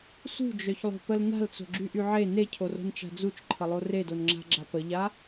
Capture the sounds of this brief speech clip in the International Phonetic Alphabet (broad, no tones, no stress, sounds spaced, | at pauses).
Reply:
s ṳ d͡ʒ œ ç lˠ o̤ p ə l n a̤ l t͡s o̤ ɡ͡ǁ y ʔ y ʕ e n e cʰ o r o̤ n t͡ʃ a̤ d͡z u t͡ʃ ǃʰ ə lˠ o r e d o n ŋ͡ǁ a̤ ɡ͡ǁ a p ə ʎ a